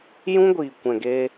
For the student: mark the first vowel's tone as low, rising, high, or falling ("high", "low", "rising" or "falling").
high